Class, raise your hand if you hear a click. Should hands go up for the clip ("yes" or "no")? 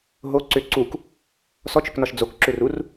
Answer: yes